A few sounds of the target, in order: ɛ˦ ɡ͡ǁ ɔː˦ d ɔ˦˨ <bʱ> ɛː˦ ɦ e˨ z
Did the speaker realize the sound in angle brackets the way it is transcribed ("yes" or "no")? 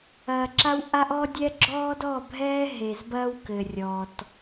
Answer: yes